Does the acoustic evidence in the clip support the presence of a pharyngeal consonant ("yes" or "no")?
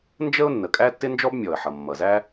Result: yes